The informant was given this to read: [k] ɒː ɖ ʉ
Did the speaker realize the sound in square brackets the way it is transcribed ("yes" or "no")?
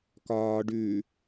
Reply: yes